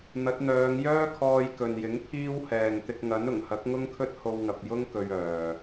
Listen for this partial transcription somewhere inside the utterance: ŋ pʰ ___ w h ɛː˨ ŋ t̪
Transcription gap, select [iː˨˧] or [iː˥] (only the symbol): iː˥